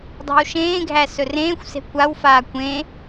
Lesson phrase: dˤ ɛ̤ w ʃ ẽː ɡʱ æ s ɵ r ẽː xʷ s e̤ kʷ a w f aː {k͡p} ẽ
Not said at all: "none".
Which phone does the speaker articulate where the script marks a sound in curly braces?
kʷ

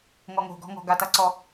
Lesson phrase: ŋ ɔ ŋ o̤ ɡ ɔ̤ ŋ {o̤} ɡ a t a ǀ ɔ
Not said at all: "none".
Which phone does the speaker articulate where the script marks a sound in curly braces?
ɔ̤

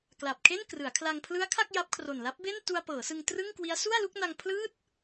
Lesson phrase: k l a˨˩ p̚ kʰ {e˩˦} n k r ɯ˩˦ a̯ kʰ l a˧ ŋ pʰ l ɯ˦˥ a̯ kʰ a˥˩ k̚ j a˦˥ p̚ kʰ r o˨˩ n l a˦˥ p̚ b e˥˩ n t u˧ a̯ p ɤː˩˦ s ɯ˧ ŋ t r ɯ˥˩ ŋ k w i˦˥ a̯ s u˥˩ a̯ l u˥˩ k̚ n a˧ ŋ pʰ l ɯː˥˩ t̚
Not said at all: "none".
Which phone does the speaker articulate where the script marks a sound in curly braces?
e˥˩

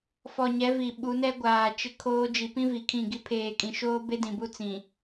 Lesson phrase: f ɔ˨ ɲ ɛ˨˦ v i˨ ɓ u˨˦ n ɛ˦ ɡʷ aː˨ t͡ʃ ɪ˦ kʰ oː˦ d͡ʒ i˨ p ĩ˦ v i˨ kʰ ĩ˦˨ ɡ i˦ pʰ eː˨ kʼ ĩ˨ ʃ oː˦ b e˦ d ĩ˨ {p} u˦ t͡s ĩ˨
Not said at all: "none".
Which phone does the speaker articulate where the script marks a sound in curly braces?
b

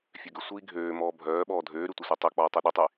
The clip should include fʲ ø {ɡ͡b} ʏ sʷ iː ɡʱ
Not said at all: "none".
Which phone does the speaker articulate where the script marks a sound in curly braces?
ɡ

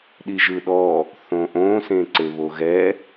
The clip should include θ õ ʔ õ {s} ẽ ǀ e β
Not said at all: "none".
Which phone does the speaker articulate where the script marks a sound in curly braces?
s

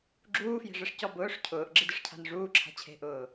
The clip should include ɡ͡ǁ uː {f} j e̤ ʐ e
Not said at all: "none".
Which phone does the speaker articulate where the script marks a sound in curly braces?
f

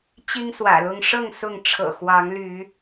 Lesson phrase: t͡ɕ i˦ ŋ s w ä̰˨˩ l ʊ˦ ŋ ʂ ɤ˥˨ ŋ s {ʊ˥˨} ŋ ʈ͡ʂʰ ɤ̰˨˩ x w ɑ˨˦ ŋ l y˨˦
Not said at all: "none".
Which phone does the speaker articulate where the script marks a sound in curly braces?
ʊ˥˨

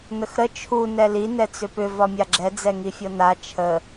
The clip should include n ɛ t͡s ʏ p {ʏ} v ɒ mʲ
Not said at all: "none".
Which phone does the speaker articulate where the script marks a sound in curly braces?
ʏ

